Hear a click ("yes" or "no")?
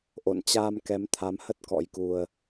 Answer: no